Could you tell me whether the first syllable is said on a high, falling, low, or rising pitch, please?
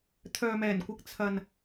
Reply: low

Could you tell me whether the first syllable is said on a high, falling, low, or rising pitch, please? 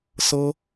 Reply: high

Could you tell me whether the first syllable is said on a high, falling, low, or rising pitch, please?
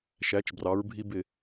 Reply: rising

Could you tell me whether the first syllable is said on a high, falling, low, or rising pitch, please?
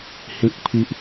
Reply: high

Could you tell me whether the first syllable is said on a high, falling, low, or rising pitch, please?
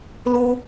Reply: high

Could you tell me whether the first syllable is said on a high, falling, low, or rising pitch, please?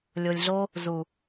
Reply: low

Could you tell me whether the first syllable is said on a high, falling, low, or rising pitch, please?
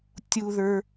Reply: high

